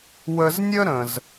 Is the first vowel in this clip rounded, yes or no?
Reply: no